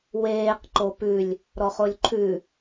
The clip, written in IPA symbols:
weːq ǃopʉlʲ | ɾɔχolʲǃʰʉ

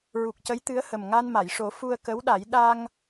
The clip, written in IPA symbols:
ɹu˨˩k̚cə˧˥jt̪ɨ˧˥ə̯hə˨˩m ŋa˧nma˨˩˨jʂo˨˩˦ fu˧ə̯ kə˧˥wɗa˨˩˦j ɗa˧ŋ

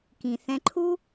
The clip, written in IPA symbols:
kĩ˧ θɛ̃˧ǃʰu˦

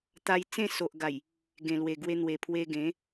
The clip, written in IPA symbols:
t̪a˧j t͡sẽ˥˧so˨ʔɡa˨˩j | ɡẽ˨˩lwe˨˩ɡwe˧n̪we˨˩ pʰwe˧ɡẽ˨˦

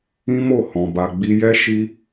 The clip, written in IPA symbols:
ĩ˦mo˦˨hɔ̃˨ ba˨ɡ͡bi˧jɛ˦ ʃi˦

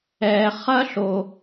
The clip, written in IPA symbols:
ɛ˧ χɐ˥ɬo˧

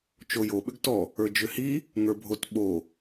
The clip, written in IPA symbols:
t͡ʃojo ɓʏɡtɔ | ə˞d͡ʒʏhi | ŋə˞bʱot ɓo

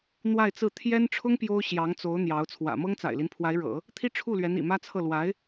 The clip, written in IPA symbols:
n̪wa˥˧ɪ̯t͡sɹ̩˥˩ t̪ʰjɛ˥nʈ͡ʂʰʊ˥ŋ pjo˥ʊ̯ ɕjɑ˧˥ŋt͡so˧˥ʊ̯ n̪jɑ˧˥ʊ̯ t͡sʰwä̰˨˩mɤ˥ŋ t͡sa̰˨˩ɪ̯li˦n pʰwa˧˥ɪ̯ɻɤ̰˨˩˦ | t̪ʰi˥ʈ͡ʂʰu˥˩lɥɛ˧˥n ḭ˨˩mä˥t͡sʰɤ˥˩ lwa˧˥ɪ̯

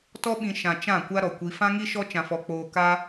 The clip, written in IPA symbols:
tɔ˦ ɓĩ˧ ʃã˨ t͡ʃã˦˨ kʷa˦ɾɔ˨kʷi˧ fã˦ŋi˦ʃɔ˦ t͡ʃã˧fɔ˧k͡poː˧ka˦

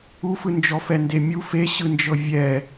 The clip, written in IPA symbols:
ufɯ nd͡ʒɔfɛndemʲu feɕɯnd͡ʒɤ vʲɛ

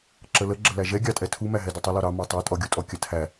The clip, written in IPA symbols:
ǁələ ɡ͡ǁəlæʒɛ ɡʲɑtʼɛtʰu mæɦɛdutˤə lɔɾɑ mɑtˤɛ tʼɔɡʲutʼɔkʲə tʰæ

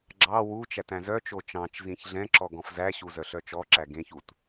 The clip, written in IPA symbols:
ɡ͡ǁɑ wut͡ʃæt æ̃zœt͡ʃo t͡ʃɑ̃t͡ʃ zĩçɮɛ̃ǁɔɡ ɔ̃fzæɕu zœɬœt͡ʃɔǁæ ɡẽç ut

